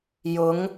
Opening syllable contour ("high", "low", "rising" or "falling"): rising